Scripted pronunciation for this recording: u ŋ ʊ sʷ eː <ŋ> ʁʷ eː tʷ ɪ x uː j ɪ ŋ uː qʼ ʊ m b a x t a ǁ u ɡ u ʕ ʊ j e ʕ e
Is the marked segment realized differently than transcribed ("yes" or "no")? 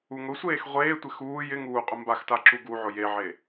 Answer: yes